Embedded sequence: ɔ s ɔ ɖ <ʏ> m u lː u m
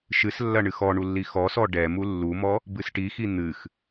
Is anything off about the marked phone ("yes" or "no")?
yes